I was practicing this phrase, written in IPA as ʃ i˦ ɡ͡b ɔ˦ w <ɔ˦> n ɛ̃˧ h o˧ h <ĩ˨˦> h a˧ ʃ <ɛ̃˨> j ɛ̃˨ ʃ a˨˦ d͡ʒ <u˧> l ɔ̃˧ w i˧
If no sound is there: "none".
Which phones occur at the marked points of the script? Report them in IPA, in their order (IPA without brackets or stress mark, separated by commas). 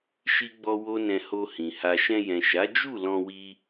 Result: o˦, ĩ˨, ɛ̃˧, u˦˨